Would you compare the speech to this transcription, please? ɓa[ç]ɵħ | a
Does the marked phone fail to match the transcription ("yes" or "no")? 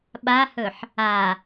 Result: yes